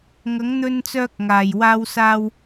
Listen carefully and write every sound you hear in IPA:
ŋɐ˨˥ŋn̪ɵ˧nt͡sœː˧k̚ ŋaː˨˩jwaː˧wsaː˧w

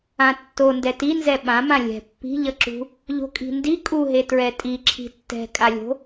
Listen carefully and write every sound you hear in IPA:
ãtːo ndɛtinzɛ ɓãmã lʲɛ̤ pːi̤ʎʌǁṳ | ʎo̤kʼi̤ndi kʼuɦe tɹɛtʼi ǁʰi̤tːɛ̤kʼalʲo̤

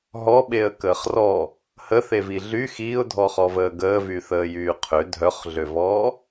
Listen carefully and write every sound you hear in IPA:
ɦɔɓeə̯kəːχ rɔ | həθevi ɮy xiːʊ̯dʱɔχɔvəː ɡəːvyθəːjyː qʰø dʱœχɮøvɔː

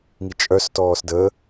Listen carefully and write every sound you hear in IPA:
ŋit͡ʃʼœs tɔːsdə

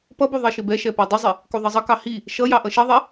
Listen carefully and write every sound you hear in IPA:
pʌbu ðˤiʃɪbɛʃɛ pɛdˤɪzˤɪ | kuðˤʌzˤʌkɑ hi | ʃʌjɑ ʔʌʃɛðˤɛ

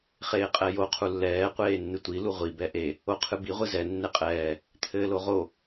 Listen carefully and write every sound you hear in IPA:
χeːqʼɛjo qʰulːɛː qʷeːnːɨtʷi luʁʷi bɛʔe | oqʰɨbi ʁʷɨzɛ nːeqʼɛː | t̪ʰɘːloʁo

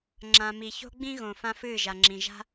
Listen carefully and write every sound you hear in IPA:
ŋ͡ǁã˨mi˨ ço̤˦ɡ͡bĩ˦ɣõ˨ fã˦fɨː˦˨ʒa˨ŋ͡ǁĩ˨ ʒa̤˦

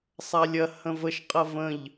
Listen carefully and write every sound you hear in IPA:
sˤalʲɐ hə̃vəʃ qʼɐvə̃ʎ

